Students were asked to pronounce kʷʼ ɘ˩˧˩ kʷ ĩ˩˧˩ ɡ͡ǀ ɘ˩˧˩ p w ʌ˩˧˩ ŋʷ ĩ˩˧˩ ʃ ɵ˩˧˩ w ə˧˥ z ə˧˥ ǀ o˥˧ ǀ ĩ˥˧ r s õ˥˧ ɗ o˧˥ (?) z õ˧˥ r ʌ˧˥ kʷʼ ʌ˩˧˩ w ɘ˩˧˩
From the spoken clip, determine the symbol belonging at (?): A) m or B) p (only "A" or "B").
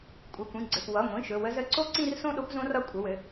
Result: B